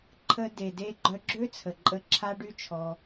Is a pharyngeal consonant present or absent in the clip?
absent